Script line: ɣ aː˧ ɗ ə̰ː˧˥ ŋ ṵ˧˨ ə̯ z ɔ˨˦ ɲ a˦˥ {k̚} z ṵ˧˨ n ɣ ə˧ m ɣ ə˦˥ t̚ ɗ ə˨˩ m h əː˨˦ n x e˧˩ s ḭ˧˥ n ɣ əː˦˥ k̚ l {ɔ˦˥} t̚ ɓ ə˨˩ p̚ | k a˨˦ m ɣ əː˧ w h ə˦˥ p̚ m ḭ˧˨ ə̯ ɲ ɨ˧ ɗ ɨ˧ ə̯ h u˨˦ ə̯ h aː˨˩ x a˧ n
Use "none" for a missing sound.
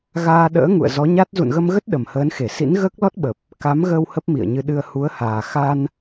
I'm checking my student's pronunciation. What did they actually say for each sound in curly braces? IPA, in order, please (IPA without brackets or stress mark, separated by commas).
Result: t̚, ɔ˦˥